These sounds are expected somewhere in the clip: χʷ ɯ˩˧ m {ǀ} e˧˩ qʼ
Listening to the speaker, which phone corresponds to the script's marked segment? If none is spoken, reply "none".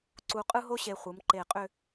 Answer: ǃ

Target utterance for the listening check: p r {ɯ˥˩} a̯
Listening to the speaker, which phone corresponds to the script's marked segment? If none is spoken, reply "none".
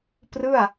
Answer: ɯ˥˩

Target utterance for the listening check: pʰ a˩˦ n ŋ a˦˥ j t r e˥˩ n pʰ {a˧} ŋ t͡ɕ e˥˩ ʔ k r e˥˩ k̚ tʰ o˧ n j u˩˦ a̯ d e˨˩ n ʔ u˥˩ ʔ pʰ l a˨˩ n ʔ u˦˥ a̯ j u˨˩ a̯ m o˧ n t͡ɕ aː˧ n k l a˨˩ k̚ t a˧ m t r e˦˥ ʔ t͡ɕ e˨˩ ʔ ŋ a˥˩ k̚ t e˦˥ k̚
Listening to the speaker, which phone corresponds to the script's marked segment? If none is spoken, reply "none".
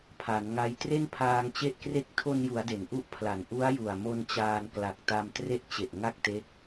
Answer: aː˧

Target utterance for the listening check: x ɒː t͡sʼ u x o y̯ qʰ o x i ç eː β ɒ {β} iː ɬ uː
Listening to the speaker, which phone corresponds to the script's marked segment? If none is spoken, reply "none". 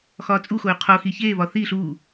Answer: θ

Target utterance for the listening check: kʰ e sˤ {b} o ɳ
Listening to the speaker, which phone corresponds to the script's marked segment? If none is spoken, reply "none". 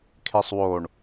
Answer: w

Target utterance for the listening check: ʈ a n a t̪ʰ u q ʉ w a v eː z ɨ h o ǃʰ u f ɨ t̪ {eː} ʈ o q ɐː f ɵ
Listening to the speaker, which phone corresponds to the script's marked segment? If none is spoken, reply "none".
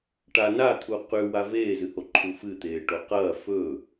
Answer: eː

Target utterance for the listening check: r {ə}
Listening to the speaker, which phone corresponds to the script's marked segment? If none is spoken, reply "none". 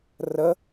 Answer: ə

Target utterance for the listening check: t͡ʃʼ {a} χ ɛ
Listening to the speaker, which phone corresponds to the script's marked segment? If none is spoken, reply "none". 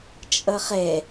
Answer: ʌ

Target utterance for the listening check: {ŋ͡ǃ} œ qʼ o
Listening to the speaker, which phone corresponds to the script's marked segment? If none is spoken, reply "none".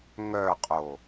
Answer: ŋ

